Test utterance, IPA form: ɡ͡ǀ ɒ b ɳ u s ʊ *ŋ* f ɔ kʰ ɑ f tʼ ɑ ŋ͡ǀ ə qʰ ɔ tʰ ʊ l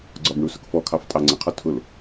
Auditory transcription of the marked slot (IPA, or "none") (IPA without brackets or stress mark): k